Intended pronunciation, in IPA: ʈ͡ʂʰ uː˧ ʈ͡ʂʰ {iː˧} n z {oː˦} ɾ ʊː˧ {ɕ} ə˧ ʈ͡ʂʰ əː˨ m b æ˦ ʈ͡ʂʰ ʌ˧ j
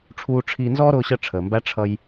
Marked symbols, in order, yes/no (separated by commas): yes, no, yes